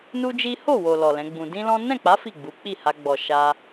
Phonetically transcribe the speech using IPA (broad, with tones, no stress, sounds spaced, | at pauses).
n u˦ d͡ʒ i˦ h o˦˨ w o˨ l ɔ˨ l ɛ̃˨˦ ɡ͡b ũ˧ d ĩ˦ l ɔ̃˦ n ɛ̃˦˨ k͡p a˨˦ f i˦˨ ɡ͡b u˨˦ k͡p i˦˨ h a˧ ɡ͡b ɔ˨ ʃ a˧